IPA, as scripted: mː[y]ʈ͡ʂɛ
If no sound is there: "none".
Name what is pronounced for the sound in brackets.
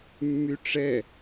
y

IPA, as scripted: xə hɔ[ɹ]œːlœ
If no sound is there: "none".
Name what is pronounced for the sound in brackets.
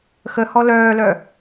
l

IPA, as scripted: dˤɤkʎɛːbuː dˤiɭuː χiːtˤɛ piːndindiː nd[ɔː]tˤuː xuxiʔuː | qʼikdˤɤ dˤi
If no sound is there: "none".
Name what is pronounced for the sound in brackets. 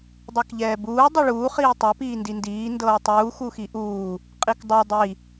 ɤː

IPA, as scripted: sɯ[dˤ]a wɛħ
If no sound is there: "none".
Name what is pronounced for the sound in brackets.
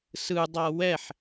dˤ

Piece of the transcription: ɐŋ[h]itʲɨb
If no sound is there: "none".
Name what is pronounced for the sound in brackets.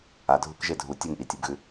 ʔ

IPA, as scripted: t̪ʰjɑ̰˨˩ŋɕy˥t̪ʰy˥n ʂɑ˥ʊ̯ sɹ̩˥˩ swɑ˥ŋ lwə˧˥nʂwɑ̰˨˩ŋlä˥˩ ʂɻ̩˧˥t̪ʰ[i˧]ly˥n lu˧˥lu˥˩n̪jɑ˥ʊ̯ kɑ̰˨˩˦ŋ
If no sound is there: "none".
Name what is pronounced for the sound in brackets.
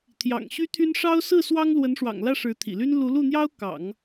ḭ˨˩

